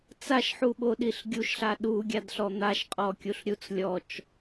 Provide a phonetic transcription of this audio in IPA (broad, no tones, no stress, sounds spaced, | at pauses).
t͡s a ʃ ħ u ɓ o ɗ i ɬ ɡʲ u ʃ ɬ a ɗ u ɡʲ a d ɬ ɔ n̪ a ʃ qʼ ɔ kʲ u ɬ ɾʲ u t͡s lʲ ɔ t͡ʃ